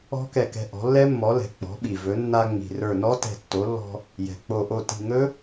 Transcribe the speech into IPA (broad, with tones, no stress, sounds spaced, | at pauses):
ɔ̤˦˥ k ɛ˧˩ k ɛ̤˧ ʔ ɔ̤˩˥ lː ɛ˦˥ mː ɔ˩˥ l ɛ̤˩ k͡p ɔ̤˩˥ ɓ i˩ v ɵ˩˥ nː a˧ ŋ͡m i̤˩ r ə˞˧˩ n ɔ˦˥ t ɛ̤˧˩ tː o˩˥ lː ɔ̤˧ | j ɛ̤˩ k͡p o˧˩ ʔ o˥˩ t i̤˧˩ ŋ ɵ˦˥